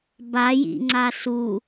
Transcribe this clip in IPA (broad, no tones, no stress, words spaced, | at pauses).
bajḭŋ͡ǀa su